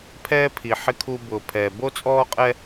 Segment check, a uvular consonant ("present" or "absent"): present